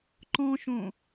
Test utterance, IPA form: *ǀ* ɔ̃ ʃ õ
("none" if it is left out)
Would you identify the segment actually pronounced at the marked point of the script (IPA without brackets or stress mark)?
ǃ